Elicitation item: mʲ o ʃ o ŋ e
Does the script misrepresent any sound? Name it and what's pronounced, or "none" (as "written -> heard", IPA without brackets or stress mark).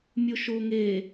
none